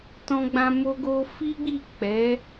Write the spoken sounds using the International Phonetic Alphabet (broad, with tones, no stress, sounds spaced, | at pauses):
t ɔ̃˧ ɡ͡b ã˧ m o˧ ɡ o˧ f i˦ ɡ͡b i˦˨ k͡p ɛ˨˦